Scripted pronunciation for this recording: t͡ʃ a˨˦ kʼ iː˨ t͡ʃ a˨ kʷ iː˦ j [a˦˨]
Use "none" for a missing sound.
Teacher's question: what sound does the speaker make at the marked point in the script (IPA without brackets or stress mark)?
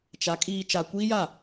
a˦˨